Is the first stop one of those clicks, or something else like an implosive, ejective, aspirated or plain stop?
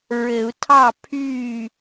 aspirated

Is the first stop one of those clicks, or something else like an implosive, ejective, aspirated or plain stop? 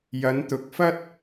plain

